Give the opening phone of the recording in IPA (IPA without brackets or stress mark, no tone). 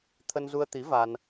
t̪ʰ